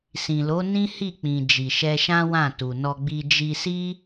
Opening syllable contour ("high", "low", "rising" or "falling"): low